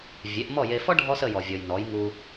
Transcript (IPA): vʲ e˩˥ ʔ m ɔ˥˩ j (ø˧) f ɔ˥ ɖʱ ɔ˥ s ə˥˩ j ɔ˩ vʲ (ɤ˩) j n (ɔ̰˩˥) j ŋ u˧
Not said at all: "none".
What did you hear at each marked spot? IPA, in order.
e˧, ɔ˩, ɔ˩˥

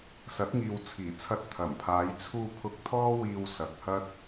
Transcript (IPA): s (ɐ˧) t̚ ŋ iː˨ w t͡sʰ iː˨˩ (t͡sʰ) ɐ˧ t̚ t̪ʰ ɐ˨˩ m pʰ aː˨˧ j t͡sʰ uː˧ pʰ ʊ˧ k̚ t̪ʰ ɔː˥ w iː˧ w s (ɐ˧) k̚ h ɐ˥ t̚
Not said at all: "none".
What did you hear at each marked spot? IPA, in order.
ɐ˨˥, t͡sʰ, ɐ˧

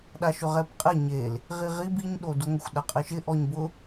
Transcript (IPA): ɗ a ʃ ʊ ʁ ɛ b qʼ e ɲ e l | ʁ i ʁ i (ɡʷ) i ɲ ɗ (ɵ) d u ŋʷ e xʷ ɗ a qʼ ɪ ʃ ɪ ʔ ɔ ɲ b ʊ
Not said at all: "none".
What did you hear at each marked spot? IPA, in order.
b, o

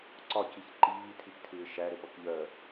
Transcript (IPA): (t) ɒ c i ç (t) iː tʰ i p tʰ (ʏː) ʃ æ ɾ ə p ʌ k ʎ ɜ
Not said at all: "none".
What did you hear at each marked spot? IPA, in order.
ǀ, ǃ, ɪː

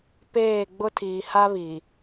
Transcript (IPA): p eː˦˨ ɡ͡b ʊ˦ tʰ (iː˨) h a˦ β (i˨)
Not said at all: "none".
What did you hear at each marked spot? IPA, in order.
iː˨, i˨

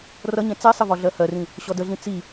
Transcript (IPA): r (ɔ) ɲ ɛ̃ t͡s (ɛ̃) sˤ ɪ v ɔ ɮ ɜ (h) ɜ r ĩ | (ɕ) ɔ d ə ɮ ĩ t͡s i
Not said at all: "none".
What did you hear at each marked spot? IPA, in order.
ʌ, ɛ, h, ɕ

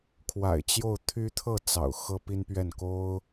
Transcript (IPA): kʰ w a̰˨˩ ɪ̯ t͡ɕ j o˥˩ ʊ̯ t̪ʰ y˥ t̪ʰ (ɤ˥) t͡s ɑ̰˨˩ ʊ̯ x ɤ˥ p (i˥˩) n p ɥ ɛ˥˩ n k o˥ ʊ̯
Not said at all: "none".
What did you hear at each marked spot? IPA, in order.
ɤ˥˩, i˥

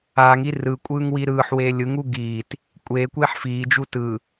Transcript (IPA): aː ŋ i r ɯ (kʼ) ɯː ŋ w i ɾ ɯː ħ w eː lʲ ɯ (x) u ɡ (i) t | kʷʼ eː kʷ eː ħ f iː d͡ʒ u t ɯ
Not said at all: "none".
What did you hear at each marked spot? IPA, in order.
kʷʼ, ŋ, iː

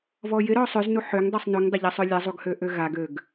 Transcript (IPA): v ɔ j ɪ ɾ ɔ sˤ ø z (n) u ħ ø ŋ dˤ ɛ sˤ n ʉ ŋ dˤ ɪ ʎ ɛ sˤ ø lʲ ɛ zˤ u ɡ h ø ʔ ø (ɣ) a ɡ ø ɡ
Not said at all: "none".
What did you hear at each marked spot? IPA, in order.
n, ɣ

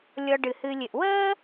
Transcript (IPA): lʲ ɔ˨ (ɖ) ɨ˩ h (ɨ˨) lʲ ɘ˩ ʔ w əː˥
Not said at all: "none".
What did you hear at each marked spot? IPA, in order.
ɖ, ɨ˨

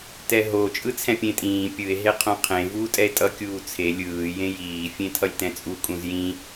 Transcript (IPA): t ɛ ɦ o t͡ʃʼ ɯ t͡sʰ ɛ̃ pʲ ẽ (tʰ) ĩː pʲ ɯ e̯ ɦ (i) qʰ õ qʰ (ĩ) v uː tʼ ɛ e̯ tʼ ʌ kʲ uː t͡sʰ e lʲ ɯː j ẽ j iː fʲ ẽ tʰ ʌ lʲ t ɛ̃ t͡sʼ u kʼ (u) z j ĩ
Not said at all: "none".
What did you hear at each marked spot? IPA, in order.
tʼ, e, ẽ, ũ

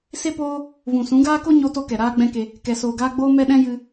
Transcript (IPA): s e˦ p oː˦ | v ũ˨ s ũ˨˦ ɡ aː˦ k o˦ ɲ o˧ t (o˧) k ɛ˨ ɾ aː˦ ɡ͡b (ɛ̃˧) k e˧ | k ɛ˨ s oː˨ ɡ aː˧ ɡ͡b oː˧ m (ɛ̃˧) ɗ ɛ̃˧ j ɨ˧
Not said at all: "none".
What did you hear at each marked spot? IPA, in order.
o˧, ɛ̃˦, ɛ˧

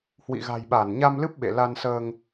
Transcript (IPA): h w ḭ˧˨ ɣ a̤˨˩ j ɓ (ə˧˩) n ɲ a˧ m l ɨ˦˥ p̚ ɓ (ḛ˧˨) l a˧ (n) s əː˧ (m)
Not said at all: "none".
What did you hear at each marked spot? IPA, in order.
a˧˩, ḛ˧˨, n, ŋ

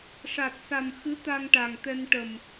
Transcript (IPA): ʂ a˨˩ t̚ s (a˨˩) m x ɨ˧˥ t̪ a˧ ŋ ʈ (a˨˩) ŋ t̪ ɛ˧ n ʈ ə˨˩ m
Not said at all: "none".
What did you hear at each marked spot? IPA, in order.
a˨˩, a˨˩

